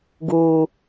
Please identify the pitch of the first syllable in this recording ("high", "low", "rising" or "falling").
low